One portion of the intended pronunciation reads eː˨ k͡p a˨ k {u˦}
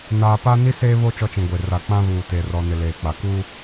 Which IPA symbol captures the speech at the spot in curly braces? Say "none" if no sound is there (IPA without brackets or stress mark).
u˦